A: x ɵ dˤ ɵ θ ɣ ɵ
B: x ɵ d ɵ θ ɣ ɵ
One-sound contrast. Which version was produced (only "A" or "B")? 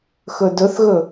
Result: B